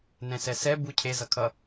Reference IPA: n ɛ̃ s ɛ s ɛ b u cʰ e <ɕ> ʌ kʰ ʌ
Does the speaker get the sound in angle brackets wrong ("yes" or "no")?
yes